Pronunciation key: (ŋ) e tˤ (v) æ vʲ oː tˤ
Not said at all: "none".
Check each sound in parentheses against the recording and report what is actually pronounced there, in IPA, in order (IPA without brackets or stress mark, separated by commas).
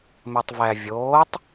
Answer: m, v